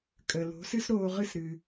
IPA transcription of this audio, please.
kʼə˩lo̤˩˥ sɨ˥sɾoː˧ʁɨ˥˩sɾɨ˩

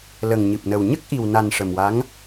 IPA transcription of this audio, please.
lə˨˩ŋɲɨ˨˩p̚nə˨˩w ɲə˦˥k̚ʔi˨˩wna˨˩n ʂə˨˩mwa˧˥ŋ

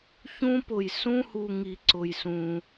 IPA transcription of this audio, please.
çũ˦pʊ˧j sũ˦hu˧ ŋi˧ǀʊ˧jsũ˧

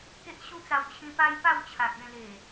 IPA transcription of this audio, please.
ke˦ʔɕu˦t͡sa˧w t͡ɕʰĩ˧pa˦jpa˥˧w t͡ɕʰa˨k̚ẽ˥˧le˨˩

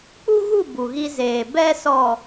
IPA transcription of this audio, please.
k͡pu˦ɣu˦˨ bu˨ɣi˦zeː˨ bɛ˦ sɔ˨

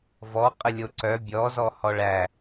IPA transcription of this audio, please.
vɔ qʼəlʲoǀœ bʲɔ zɔhɔɭæ

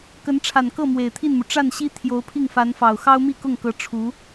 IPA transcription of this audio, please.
kə˧˥nʈ͡ʂʰa˨˩nkɤ˥˩ mwe˨˩ɪ̯t̪ʰi˥˩nmu˩ ʈ͡ʂa˥˩nɕi˥ t̪ʰjo˧˥ʊ̯pʰi˥˩ŋfa˧˥nfɑ˨˩ʊ̯ xɑ˥ʊ̯mi˥˧kʊ˥˩ŋkɤ˧˥ ʈ͡ʂʰu˧˥

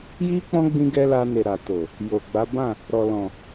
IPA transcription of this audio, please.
ji˦k͡pɔ̃˦ ɡ͡bĩ˧ɡɛ˧ la˧ne˨ ɾa˨to˨ | jo˨ɡ͡ba˨˦bã˦˨ | ɾɔ˨lɔ̃˨

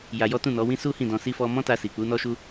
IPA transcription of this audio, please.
ja˧jɔ˦ tũ˦˨nɔ˨˦ wĩ˦ su˦hĩ˦˨ dɔ̃˧ si˦fɔ˦ mɔ̃˦ta˧si˨k͡pu˨˦ nɔ˦ʃu˦

